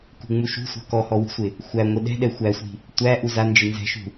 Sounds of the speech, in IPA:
k ṳ ŋ͡m u ʃ ṳ sʷ a̤ k ɔ h ɔ w i̤ sʷ ɪ | xʷ æ ŋʷ ɪ ɗ ɛ̤ ɗ ɛ xʷ æ sʷ i̤ | tʷ æ ʔ u z a n d͡ʒ ɪ n z ɛ̤ ʃ ṳ

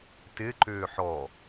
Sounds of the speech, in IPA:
t ɪ ǃ ʏː ħ ɔ

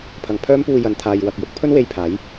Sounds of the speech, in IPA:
pʰ ɐ˨ ŋ pʰ œː˥ m p uː˧ j ɐ˨˧ n t̪ʰ aː˨ j w ɐ˨ k̚ j ʊ˥ k̚ pʰ ɵ˥ n w e˧ j pʰ aː˨˥ j

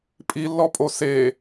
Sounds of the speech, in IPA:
pʼ i lː ɔ pʼ o s e

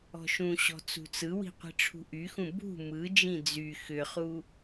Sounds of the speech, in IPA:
ɔ̤ ʃ ũ ɕ ɔ̤ t͡s ṳ t͡s ɯ w i̤ qʷ i̤ ʈ͡ʂʰ ṳ ʔ y x ũ b ṳ m ɯ d͡ʒ ĩ d͡z y x ʏ χ u

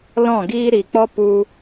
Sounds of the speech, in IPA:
l ɔ̃˦˨ ɡ iː˦ ɾ i˨ k͡p ɔ˦ p u˧

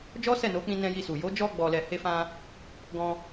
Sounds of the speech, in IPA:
d͡ʒ ɔ˦ s ɛ˦˨ n o˨˦ k͡p ĩ˧ n ɛ̃˧ j i˧ s u˨ j o˨˦ d͡ʒ ɔ˧ ɡ͡b ɔ˨ l ɛ˨ h e˧ f ã˧ | ɡ ɔ̃˧

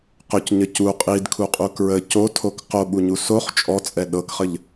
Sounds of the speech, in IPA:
q ɵ c ɲ ə c u qʼ i d kʰ u qʼ u k ɹ ə c o tʰ o k q o ɓ u ɲ u s o χ t͡ʃʼ ɔ t͡sʼ ɛ ɗ ɤ k χ ə ʎ

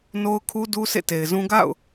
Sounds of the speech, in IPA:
n o˦ ʊ̯ kʰ u˦ d u˦ sʰ ḛ˦˨ t e˨ ɪ̯ z ũ˦ ɡ a̰˦˨ ʊ̯

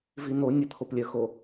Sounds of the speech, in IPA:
v i n o nʲ ə t̪ʰ o p lʲ œ x o

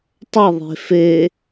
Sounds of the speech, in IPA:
tˤ ɐ ðˤ e̤ f e

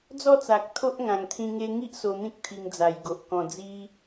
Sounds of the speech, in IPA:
d͡z ɔ˥˧ t͡s a˨ k̚ t̪ʰ o˦ ʔ ŋ ã˨˩ ŋ t̪ʰ ĩ˧ ŋ e˧ ŋ i˦ ʔ s o˧ n̪ ĩ˦ k̚ t̪ʰ i˧ ŋ d͡z a˨˩ j ɡ o˨ ʔ k ɔ̃˨˩ d͡z i˧

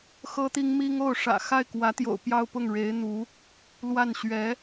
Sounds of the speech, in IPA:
x ɤ˥ t̪ i˥ ŋ m i˥ ŋ o˥˩ ʊ̯ ʂ ä̰˨˩ x a˥˩ ɪ̯ k w ä˧˥ t̪ j o̰˨˩ ʊ̯ p j ɑ˥˧ ʊ̯ p ʊ˥˩ ŋ ɻ e˧˥ ɪ̯ n̪ u˧˥ | l w a˥˩ n ɕ ɥ ɛ˧˥

